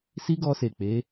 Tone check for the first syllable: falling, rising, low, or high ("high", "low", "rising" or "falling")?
high